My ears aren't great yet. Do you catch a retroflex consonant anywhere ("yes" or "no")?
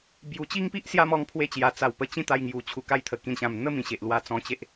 no